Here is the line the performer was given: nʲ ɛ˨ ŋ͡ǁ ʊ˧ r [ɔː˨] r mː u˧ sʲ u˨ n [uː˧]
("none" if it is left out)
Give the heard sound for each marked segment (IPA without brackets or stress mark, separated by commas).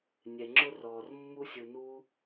ɔː˨, uː˧